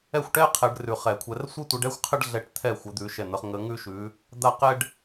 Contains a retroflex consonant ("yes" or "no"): yes